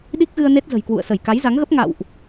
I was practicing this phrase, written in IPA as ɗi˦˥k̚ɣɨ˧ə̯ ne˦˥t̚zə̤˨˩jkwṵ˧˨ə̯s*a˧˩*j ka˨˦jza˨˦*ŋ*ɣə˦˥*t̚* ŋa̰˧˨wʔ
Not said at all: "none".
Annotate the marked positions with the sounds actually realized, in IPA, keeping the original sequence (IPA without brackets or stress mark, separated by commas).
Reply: ə˧˩, ŋ, p̚